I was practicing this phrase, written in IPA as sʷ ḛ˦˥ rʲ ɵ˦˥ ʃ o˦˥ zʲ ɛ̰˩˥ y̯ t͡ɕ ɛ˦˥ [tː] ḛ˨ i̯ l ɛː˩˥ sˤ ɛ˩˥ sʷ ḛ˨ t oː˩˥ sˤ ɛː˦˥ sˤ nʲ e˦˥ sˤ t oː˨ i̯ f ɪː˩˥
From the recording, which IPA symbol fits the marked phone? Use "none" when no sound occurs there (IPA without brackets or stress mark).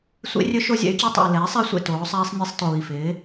tˤ